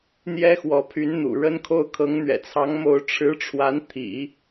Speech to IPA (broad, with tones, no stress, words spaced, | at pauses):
n̪jɛ˥xwɔ˧˥pʰy˧˥n n̪ṵ˨˩ɻə˥nkʰo˥˩ʊ̯ kʰɤ˧˥ŋn̪ɥɛ̰˨˩t͡sʰɑ˧˥ŋmo˧˥ʊ̯ ʈ͡ʂʰɻ̩˧˥ʈ͡ʂʰwa˧˥n t̪ʰḭ˨˩˦